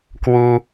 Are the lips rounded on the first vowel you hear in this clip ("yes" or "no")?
yes